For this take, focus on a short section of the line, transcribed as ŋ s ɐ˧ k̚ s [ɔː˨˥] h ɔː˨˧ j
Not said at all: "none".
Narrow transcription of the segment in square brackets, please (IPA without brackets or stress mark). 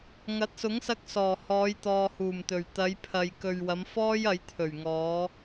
ɔː˨˩